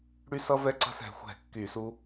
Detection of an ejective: absent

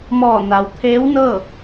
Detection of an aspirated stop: present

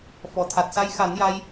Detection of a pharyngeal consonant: absent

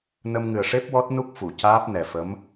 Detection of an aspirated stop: absent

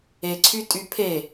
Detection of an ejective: present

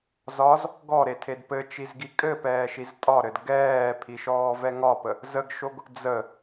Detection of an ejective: present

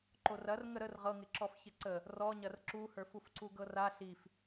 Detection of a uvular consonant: present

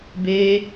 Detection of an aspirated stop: absent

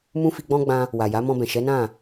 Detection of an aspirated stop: absent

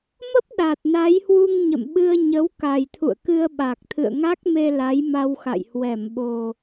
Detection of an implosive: present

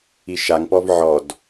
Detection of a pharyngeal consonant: present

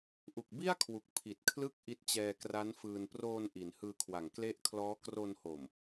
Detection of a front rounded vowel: absent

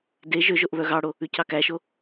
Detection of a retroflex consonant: present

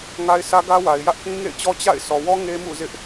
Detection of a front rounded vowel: absent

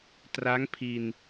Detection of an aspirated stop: present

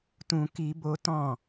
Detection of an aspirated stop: absent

